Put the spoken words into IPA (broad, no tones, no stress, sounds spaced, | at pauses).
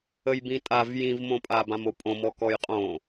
ə j b ĩ tʼ a v j ĩ v m õ pʼ a b ã m o pʼ õ m ɔ k ɔ j qʼ õ